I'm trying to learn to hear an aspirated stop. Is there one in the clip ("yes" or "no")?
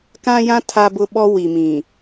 yes